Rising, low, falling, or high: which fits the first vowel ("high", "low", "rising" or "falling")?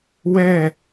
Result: falling